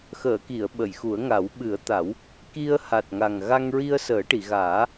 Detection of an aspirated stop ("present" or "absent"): absent